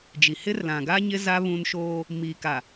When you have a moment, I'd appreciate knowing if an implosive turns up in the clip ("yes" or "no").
no